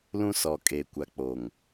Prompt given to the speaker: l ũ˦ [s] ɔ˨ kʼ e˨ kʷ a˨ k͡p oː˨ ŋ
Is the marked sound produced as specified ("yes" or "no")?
yes